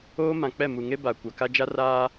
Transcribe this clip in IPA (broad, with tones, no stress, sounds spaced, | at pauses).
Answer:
oː˦ m ã˨ k͡p ɛ˦˨ m u˨ ŋ e˦ b a˨ kʷ a˨ k a˦ d͡ʒ a˦ r aː˦